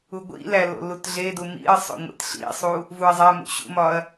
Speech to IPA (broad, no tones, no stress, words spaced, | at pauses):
uɡʷḭlæ lo̰lutɮedu mḭɐ̯ sˤo̰ŋʷḛtɬḭsˤu | vuɐ̯zˤæmṵ ɕṵmɒɐ̯